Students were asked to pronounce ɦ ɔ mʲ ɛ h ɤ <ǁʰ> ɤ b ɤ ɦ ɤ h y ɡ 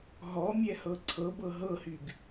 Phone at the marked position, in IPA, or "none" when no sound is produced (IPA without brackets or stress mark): ǀʰ